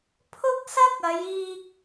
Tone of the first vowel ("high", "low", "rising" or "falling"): high